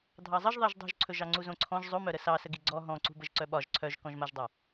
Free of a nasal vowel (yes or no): no